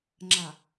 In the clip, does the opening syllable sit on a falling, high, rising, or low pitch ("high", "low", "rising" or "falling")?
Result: low